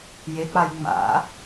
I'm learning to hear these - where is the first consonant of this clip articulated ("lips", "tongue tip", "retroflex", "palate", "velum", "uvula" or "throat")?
palate